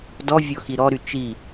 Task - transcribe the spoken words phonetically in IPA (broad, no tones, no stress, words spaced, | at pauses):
dɔvʲɔ xiɾɔɾy t͡ʃi